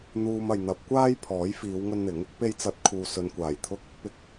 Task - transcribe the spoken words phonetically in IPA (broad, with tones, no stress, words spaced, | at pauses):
n̪uː˥mɐ˧j n̪ɐ˨˥p̚kʷaː˥jpʰɔː˨˥j fiː˨˧wŋɵ˧nn̪ɪ˨˥ŋ | pe˧jt͡sɐ˨˥t̚ kʰuː˨sɵ˨nkʷaː˨˩j t̪ʰʊ˥k̚ | pɪ˧k̚